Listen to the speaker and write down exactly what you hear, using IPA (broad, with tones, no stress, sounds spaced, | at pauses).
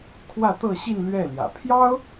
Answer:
kʰ w ä˥˧ t̪ ɤ˥˧ ɕ i˥˧ n l ɥ ɛ˥˩ l j ä̰˨˩ pʰ j ɑ˥ ʊ̯